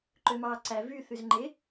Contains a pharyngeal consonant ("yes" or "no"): no